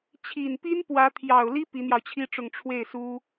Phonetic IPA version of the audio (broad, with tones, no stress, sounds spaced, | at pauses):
t͡ɕʰ i˨˩ n p i˥ n p w ä˧˥ t̪ʰ j ɑ˨˩ ʊ̯ l i˥ p i˧˥ n̪ j ɑ˧ ʊ̯ t͡ɕʰ i˥ ʈ͡ʂ ʊ˥˧ ŋ ʈ͡ʂʰ w e˥˩ ɪ̯ s u˥